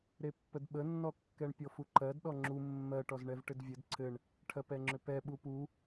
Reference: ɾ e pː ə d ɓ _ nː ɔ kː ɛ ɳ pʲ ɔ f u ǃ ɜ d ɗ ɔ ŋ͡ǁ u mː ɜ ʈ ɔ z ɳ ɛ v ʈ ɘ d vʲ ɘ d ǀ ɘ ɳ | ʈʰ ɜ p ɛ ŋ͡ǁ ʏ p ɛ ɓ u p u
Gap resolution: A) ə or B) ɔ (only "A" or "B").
A